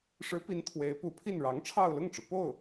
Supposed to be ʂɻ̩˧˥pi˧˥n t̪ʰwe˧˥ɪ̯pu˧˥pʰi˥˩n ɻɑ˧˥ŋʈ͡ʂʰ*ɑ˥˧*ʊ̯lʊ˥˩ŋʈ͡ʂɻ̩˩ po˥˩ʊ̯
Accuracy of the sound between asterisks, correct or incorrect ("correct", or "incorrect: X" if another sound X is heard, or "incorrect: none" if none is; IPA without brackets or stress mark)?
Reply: correct